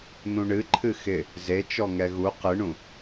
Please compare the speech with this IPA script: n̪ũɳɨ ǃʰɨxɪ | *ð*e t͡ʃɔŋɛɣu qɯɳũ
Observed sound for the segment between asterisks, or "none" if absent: z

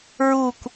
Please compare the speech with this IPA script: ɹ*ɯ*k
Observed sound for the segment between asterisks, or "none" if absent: u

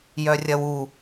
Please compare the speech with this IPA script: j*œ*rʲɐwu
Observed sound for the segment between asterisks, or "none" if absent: œ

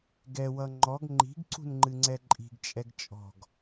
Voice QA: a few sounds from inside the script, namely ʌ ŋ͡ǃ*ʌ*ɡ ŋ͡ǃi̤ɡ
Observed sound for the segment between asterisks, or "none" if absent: ɔ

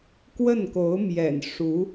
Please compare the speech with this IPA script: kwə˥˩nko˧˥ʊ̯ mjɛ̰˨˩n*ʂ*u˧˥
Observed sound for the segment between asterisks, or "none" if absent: ʂ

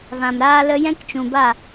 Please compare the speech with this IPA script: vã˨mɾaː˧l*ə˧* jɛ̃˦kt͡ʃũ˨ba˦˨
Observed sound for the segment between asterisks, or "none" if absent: ə˧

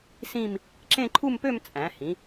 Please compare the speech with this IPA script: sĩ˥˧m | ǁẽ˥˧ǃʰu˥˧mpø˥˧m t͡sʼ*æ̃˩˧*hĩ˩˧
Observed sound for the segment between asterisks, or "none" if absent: æ̃˩˧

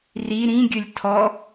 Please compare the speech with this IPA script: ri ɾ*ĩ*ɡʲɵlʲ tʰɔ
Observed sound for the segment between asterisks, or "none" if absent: ĩ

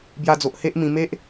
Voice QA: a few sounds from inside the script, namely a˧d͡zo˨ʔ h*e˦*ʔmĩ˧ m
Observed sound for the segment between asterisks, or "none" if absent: e˦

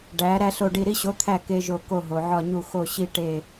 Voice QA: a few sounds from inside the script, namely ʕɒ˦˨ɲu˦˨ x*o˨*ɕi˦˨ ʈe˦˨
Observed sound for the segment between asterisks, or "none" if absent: o˦˨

